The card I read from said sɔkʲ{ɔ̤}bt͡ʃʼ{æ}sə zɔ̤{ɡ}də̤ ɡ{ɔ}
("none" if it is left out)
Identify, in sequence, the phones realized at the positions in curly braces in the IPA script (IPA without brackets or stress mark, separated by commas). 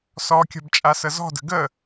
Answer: ɔ̤, a, none, ə